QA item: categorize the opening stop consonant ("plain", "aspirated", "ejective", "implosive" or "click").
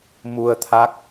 aspirated